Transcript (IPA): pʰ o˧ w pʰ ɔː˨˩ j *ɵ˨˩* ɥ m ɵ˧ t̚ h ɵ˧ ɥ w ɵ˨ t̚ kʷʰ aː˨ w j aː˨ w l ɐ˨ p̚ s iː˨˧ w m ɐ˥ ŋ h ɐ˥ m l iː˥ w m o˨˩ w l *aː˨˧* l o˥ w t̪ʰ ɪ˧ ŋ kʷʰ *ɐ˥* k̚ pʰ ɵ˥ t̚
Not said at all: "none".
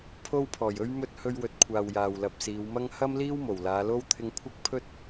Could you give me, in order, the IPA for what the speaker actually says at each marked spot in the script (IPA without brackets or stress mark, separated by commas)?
ɵ˧, aː˨˧, ɐ˥